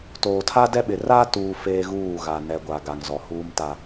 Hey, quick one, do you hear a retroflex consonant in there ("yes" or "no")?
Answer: no